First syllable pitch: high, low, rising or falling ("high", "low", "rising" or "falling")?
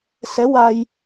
rising